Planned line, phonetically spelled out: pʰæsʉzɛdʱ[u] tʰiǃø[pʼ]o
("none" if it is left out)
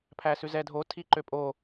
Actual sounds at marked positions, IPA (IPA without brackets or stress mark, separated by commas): o, pʼ